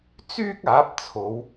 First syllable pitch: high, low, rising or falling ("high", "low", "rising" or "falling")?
high